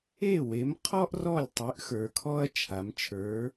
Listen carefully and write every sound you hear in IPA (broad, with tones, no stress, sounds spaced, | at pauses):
e˥˩ w e˨˥ m qʰ ɔ˥ ʔ r ɔ˥˩ lʲ tˤ y˨˥ ʔ x ə˞˩˧ kʰ ɔː˥ ɐ̯ t͡ʃʰ a˩˧ m t͡ʃʰ ə˞˨˥